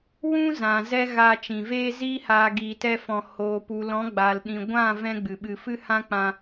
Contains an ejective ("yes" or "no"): no